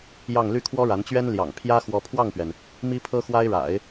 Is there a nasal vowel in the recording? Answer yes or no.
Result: no